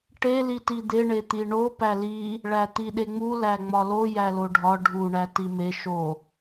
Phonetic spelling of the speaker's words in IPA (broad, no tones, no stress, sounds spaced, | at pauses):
ʈ e l i t i d̪ e ɳ e t̪ i ɳ o p æ l i | ɭ æ t̪ i ɗ e ŋ͡m u l æ ŋ͡m ɒ l o j æ l o ɖʱ ɒ ɖʱ u ɳ æ t i m e ʃ o